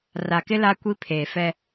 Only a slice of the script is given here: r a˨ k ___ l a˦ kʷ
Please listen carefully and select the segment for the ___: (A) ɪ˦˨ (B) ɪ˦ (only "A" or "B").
B